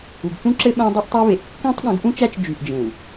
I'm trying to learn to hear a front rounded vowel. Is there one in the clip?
yes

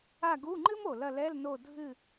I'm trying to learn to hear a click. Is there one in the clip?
yes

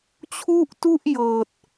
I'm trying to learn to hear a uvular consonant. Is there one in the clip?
no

